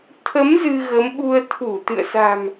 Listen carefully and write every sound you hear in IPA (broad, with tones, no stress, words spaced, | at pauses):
t̪ʰə˨˦m zɨ˧ɣə˨˦mɓu˧ə̯ t̪ʰu˧˩t̪ɨ̰˧˨ə̯sa̤˨˩m